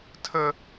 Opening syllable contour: high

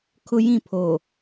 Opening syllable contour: high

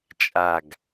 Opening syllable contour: falling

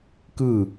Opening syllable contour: falling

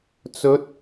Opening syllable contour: rising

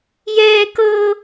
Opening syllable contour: high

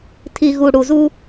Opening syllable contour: low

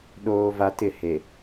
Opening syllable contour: high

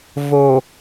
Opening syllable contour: low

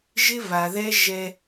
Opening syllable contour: high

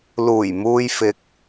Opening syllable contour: low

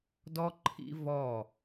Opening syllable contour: high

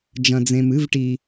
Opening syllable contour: low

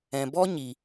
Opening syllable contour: low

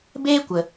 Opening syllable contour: high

